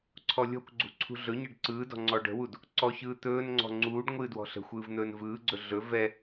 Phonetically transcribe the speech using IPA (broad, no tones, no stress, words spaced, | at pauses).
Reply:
ǀʰɔlʲɔ̤kʷɡ͡ǀṳ ǀʰṳɮɵɲɛɖ ǀɯːdɔ̤ ŋ͡ǀɔɖə̤wud | ǀɔçɯː t̪ɵːnŋ͡ǀɔ̤ ŋ͡ǀuːɖ ŋʷɨːdwɔ̤ɬə̤xʷɯːv n̪ɵːnvɯːɡ͡ǀɵ ɮɵ vɛ